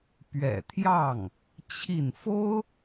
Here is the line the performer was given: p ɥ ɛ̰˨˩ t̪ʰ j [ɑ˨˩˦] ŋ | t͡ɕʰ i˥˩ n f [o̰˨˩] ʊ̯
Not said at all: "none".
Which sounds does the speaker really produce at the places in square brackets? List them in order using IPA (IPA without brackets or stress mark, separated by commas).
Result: ɑ˥˩, o˥